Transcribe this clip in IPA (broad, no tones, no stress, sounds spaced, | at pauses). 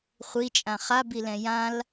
χʷ i t͡ʃʼ ã χ a b i l ɛ̃ j ã l